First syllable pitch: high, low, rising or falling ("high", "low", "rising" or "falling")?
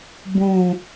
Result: low